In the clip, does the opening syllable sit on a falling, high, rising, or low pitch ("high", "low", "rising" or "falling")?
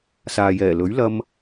low